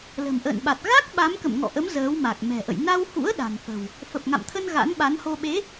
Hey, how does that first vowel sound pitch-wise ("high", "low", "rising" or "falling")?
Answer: low